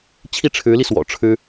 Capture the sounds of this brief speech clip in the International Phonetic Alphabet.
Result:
t͡ɕʰ i˥˩ ʈ͡ʂʰ ɻ̩˧˥ l i˧ s w ɔ̰˨˩ ʈ͡ʂʰ ɻ̩˥

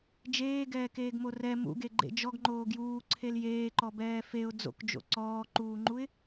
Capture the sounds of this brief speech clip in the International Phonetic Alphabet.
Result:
d͡ʒ eː ɡ ɛː k eː ɡ m o r ɛ m ṵ ɡ e ɡ͡ǃ ḛ d͡ʒ ɔ ɡ ŋ͡ǃ oː ɡ j uː ǀʰ e l j eː ǃ ɔ b ɛː f e ʊ̯ d͡z o̰ k d͡ʒ o̰ ǀ ɔː ǃ uː ŋ͡ǃ u ɪ̯

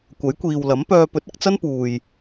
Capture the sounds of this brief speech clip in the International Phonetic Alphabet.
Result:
kʷ ɐ˨˥ j kʷ iː˨ w l ɐ˨˥ m p œː˧ p ɵ˨˥ t̚ ɪ˧ k̚ t͡s ɐ˥ n p uː˨ j

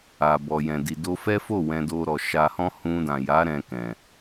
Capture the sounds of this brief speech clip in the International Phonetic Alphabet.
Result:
a˨ b ɔ˨ j ɛ̃˨ d i˨ d o˧ f ɛ˦ f o˦˨ w ɛ̃˧ d o˧ ɾ ɔ˨ ʃ a˧ h ɔ̃˦ h ũ˧ d ã˨ j a˨˦ ɾ ɛ̃˧ k ɛ̃˨

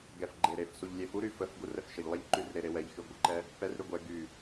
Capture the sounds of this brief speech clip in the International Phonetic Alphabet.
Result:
ɡ ɛ f ɡ͡ǃ e ɾ e f s u ʎ lʲ e f u ɾ y f ə f ɡ u r ɛ f ʃ ə ʎ lˠ ɛ ʎ ǃ y r ɾ e ɾ e w ɛ ʎ x y ɡʷ ə ǃ ɛ | p ɛ r ɾ y ɡʷ ɛ ɡ y

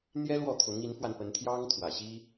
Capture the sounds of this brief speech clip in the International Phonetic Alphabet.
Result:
n̪ j ɛ˥ l w ɔ˥˩ t̪ʰ ʊ˧˥ ŋ i˧˥ n f w a˧ n p ə˧˥ n t̪ʰ j ɑ˥ ŋ t̪ʰ w ä˨˩ ɕ i˥

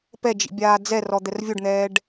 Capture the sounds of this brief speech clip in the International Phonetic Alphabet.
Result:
p ɛ d͡ʒ ḭ bʲ aː d͡z ɛ r ɔ d̪ ɛ r vʲ o ɖ n̪ ɛː ɖ

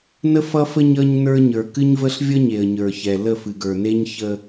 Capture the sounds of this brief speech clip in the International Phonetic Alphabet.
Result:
n ə˦ f ʌ˦ f ə˦ ɲ ʌ˦ ɲ n ə˞˦ ɲ ə˞˨ k ɨ˦ ɲ v ə˦ ɬ vʲ ʌ˦ ɲ e˨ ə̯ ɲ ə˞˨ ç ɛ˨ l ə˦˨ f ɨ˨ ɡ ə˞˨ n e˦ ɲ ç ə˦

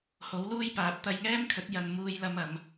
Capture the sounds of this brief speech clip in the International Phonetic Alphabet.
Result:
h o˨˥ w l uː˥ j p aː˨˥ p̚ t̪ ɐ˧ j ŋ ɛː˥ m kʰ ɵ˨˥ t̚ j ɐ˧ n m uː˧ j l ɐ˧ m ɐ˨˧ m

